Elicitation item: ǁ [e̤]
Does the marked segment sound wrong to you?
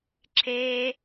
yes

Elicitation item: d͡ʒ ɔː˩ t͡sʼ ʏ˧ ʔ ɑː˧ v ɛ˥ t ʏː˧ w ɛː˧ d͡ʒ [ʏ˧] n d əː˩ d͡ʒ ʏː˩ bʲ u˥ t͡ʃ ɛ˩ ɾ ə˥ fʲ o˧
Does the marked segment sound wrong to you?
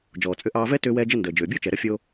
yes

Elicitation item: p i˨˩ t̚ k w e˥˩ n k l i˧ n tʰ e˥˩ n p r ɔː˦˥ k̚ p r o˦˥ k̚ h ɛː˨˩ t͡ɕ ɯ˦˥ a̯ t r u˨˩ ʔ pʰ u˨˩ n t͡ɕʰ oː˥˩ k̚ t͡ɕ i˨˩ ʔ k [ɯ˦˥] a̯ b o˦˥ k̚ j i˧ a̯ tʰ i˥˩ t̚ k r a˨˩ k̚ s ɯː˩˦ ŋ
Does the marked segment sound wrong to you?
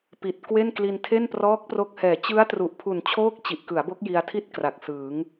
yes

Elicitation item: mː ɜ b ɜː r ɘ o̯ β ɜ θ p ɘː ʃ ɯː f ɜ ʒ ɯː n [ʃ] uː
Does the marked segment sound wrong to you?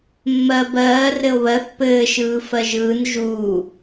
yes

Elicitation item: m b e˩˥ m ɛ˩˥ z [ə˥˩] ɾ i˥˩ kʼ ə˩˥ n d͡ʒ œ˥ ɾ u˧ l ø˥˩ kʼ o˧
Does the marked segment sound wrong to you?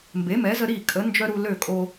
yes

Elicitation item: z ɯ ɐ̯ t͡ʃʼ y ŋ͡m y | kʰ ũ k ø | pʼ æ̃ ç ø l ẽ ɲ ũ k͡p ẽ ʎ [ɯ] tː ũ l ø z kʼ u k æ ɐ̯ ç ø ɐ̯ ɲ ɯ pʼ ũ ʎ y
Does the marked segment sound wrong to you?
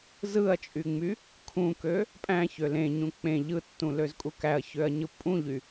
no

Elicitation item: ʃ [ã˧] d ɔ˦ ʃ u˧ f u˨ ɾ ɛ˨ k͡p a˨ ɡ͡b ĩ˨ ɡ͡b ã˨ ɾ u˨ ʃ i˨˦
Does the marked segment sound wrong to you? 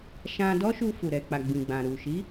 no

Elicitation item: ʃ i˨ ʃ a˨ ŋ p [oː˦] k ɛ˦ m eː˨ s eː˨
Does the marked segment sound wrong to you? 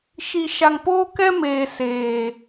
no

